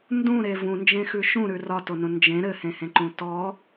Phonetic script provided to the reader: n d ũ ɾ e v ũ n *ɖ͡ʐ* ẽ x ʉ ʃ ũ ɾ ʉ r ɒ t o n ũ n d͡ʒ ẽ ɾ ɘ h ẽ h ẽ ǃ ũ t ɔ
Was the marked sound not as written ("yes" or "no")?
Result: yes